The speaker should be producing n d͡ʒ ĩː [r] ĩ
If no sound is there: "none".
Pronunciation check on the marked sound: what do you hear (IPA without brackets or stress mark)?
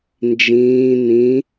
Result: n